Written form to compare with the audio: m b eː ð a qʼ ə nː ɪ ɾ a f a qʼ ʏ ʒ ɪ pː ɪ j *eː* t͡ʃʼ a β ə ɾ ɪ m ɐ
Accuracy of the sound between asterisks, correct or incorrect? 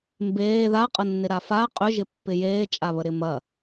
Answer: correct